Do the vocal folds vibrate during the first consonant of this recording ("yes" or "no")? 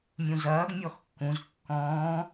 yes